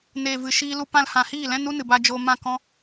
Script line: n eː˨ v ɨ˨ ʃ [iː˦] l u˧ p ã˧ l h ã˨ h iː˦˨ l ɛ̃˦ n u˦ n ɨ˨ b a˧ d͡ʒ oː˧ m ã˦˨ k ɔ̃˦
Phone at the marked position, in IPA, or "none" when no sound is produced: iː˧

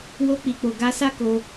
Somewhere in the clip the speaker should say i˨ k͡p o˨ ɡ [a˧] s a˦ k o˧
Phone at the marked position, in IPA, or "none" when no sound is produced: a˧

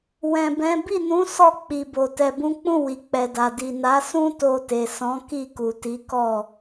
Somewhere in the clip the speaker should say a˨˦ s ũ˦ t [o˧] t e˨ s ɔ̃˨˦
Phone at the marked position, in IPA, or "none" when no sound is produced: o˧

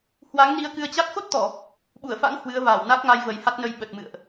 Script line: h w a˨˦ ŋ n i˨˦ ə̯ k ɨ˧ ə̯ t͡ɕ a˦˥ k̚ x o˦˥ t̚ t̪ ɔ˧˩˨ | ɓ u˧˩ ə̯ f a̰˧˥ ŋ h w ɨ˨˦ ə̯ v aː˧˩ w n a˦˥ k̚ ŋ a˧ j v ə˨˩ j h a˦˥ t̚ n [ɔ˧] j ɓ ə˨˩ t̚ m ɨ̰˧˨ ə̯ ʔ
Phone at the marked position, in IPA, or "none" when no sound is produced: ə˧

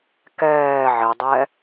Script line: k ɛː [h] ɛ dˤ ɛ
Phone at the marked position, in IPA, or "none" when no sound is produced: ʕ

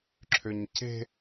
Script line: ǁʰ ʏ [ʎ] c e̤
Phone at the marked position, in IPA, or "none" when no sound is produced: ɲ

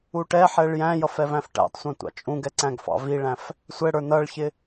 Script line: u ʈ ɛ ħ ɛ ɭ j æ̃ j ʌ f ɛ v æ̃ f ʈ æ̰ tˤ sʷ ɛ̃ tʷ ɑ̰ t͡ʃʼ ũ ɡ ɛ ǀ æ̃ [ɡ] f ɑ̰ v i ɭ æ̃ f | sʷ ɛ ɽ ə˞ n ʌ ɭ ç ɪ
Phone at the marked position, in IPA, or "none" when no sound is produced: ɡ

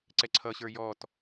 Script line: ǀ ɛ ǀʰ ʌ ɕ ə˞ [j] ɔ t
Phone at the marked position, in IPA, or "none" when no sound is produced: j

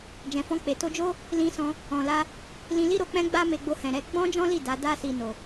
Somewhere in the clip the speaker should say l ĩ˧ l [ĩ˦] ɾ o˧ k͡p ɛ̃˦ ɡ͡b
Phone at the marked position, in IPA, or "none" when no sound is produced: i˦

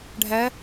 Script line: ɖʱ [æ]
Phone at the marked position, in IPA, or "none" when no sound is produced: æ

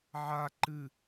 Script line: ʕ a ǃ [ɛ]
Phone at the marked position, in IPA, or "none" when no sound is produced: ɨ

